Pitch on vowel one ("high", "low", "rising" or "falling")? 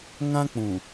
high